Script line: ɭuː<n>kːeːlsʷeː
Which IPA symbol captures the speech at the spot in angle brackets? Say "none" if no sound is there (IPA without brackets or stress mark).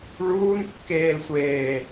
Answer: n